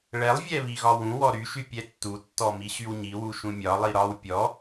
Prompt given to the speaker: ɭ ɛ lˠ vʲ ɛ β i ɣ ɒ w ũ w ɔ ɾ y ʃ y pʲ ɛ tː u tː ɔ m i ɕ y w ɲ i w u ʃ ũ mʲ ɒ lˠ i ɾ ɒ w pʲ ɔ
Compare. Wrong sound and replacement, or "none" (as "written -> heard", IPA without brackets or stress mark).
none